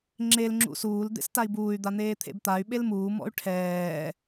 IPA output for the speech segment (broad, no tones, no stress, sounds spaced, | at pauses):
ŋ͡ǁ e l ŋ͡ǁ ṵ s uː l d̪ ḛ s t a i̯ b uː y̯ d̪ a n̪ eː t̪ʰ ḛ b t̪ a y̯ ɓ e l m uː m ɔ̰ y̯ ʈʰ ɛː